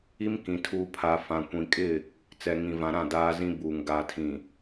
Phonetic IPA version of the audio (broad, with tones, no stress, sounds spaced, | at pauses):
i˦ m k ĩ˨ tʰ uː˨ pʰ a˨ f ã˨ kʷ ĩ˨ kʼ ɪ˦˨ | t͡s ɛ˨ ŋ ĩ˨ v ã˨ ɾ ã˦˨ d aː˦ z ĩ˦ b uː˨ ŋ ɡ aː˨ tʰ ĩ˨